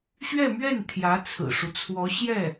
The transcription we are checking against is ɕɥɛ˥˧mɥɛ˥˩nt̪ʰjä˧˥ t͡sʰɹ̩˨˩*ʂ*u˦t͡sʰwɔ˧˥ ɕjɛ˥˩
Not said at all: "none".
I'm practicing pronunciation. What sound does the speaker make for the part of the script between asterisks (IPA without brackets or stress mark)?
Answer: ʂ